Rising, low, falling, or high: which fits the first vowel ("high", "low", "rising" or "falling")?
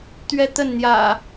high